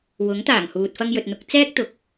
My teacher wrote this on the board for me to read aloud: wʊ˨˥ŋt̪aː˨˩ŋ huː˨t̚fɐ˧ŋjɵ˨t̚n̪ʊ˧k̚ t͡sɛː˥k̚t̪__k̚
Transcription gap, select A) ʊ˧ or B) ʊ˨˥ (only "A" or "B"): B